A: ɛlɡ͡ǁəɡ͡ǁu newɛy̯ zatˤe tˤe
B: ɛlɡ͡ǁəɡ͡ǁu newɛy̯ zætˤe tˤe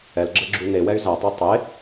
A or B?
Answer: B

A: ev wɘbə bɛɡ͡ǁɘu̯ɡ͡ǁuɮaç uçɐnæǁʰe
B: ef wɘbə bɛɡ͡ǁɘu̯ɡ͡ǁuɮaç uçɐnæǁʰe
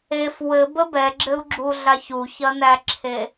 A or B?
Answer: B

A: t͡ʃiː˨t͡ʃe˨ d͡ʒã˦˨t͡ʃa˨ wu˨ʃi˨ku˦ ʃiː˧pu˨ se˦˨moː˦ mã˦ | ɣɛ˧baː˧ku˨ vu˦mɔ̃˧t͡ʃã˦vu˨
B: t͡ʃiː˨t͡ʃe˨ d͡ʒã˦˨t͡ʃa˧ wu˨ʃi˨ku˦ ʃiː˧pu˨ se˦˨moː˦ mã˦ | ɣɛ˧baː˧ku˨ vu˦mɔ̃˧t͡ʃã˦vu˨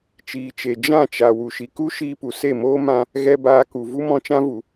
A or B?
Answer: A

